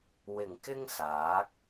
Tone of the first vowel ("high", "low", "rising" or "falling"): low